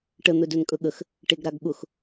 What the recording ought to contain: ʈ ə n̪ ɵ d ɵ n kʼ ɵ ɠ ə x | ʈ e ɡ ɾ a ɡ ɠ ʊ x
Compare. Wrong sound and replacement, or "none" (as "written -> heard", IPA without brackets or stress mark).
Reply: none